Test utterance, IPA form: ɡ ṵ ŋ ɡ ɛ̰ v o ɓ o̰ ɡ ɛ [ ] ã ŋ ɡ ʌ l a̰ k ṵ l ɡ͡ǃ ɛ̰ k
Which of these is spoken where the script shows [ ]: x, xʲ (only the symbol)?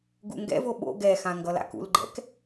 x